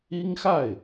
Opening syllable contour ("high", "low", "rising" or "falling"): high